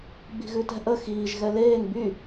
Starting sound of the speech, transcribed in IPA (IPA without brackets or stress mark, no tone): ɡ͡b